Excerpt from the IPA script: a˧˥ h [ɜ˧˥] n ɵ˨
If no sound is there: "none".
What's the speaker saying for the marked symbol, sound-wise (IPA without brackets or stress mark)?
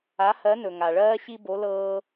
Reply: ɜ˧˥